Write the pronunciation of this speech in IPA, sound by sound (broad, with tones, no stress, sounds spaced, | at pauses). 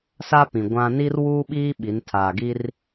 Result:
s a˦ p ĩ˨ ɡʷ ã˦ n iː˦ r w uː˦ ɓ iː˦ ɓ i˨˦ n tʰ aː˨ ɡ i˦ r